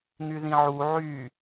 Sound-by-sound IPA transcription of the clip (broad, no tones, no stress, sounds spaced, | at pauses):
ŋ y ð ĩ ʕ u ʕ y